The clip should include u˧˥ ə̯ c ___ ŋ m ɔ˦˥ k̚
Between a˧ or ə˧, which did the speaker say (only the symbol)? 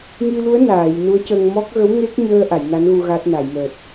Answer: ə˧